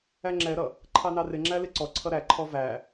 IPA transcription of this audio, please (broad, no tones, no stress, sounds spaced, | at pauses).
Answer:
æ ŋ͡ǁ ɛ ɾ ʌ | ǃʰ ɑ n ɑ r ɪ ŋ͡ǁ æ l ɪ ǀ ɔ ǀʰ ʌ ɾ æ ǃʰ ɔ v æ